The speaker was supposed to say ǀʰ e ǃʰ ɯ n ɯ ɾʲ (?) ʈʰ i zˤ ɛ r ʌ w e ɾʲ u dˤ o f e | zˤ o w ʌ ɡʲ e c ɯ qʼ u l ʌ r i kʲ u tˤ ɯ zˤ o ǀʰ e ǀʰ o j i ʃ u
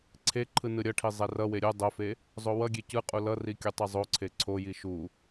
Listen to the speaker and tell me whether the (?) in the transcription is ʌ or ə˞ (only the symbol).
ʌ